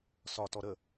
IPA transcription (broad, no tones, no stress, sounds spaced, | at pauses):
s ɒ t ɔ ɾ ə